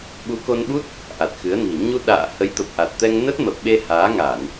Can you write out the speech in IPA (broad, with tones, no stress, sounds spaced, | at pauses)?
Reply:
ɓ u˨˦ k o˧ n ɓ u˦˥ t̚ | ʔ a˨˩ t̚ x ɨ˨˦ ə̯ n i̤˨˩ ɲ u˧ ɗ a̰ː˧˨ h ə˨˦ j t̪ ə˨˩ p̚ ʔ a˨˩ t̚ t̪ ɛ˧ ŋ n ə˦˥ t̚ m ə˨˩ p̚ ɓ e˧ h aː˨˦ ŋ a˧˩˨ n